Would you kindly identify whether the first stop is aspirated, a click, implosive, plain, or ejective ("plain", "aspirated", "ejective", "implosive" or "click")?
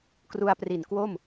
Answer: plain